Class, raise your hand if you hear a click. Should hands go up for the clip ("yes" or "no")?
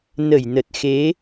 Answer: no